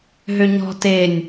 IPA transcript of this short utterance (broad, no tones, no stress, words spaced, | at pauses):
ɦøɲɔ̤ tenʲ